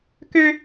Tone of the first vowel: high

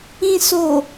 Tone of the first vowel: low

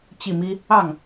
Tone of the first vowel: falling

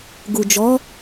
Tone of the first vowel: low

